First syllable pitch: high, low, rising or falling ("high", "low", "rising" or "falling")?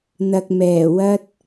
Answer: low